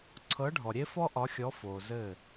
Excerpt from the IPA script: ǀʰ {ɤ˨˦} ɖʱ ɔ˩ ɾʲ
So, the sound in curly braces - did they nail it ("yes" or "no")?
yes